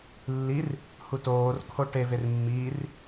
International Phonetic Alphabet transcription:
lː i r | h u t oː r kʰ o ʈ e v e r mː iː r

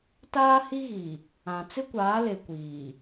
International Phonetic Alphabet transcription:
t aː˦ h i˦ ɣ i˨ | ã˨ t͡s ɪ˦ kʷ aː˨˦ l e˨ kʷ iː˨

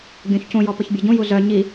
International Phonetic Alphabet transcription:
ɡʲ õ ç c ũ j ɔ p ə ç bʲ o ɟ ũ j u z œ ɲ i

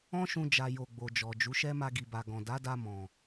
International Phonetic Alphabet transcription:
ɔ̃˦ ʃ ũ˧ d͡ʒ a˨ j o˨ ɡ͡b o˨ d͡ʒ ɔ˨ d͡ʒ u˨˦ ʃ ɛ˦ m a˧ ɡ i˨ b a˨ ɡ ɔ̃˨ d a˨˦ d a˧ m ɔ̃˨

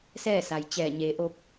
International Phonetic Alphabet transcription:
s ɛː˥˨ s a˩ j t͡ɕ ɛː˧˩ ɲ eː˩˧ ʔ o˧ p̚

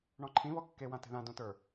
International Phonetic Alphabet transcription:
ɳ ɔ̃ ǃʰ ĩ β ɔ kː e w ã t e̤ ð ã d õ t ə˞

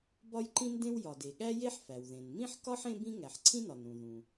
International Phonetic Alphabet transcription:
b ɒ˥ j ǃ ĩ˥ n d ẽ˥ w j ɒ˩ d e˩ ɠ æ˥ j e˥ ħ f æ˩ w ð ẽ˩ n m ĩ˥ ħ k ɒ˥ ħ ẽ˥ b ĩ˥ ŋ æ˩ ħ ǀʰ ĩ˥ n ɒ˩ n ɾ ũ˩ ð ũ˩

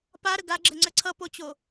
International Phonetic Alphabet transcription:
p a ɾ ə ɡ a ɡ͡ǁ ə ŋ͡ǀ ə ǀʰ ʌ p o t͡ɕ o

